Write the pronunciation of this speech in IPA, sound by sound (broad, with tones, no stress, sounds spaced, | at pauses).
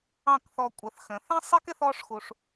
ɑ̃˥˩ k θ ɔ˧ kʷʼ ə˩˥ θ x ə̃˩˥ θ ɛ̃˥ sˤ i˥ k ɪ˥ θ ɔ˥ ʂ x u˧ ʂ